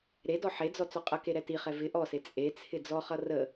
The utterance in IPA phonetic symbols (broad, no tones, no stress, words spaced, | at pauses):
ɾedɔ ħed͡zɔ t͡sɔqʼʌke ɾɛtiχɛ vɪ ʔɔse t͡sʼet͡sʰɪ d͡zɔχʌ rə